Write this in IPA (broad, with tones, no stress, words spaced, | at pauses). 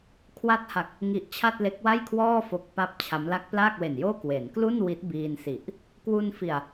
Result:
kʰwa˦˥t̚ha˨˩k̚ | ŋi˨˩ʔ t͡ɕʰa˥˩t̚le˦˥k̚wa˥˩jkʰwɔː˥˩ fo˦˥k̚pa˥˩p̚t͡ɕʰa˦˥m la˦˥k̚plaː˥˩k̚we˨˩njoː˥˩ kwe˩˦nklu˥˩n wi˦˥t̚biː˧nsi˨˩ʔ | kwu˧nfi˨˩a̯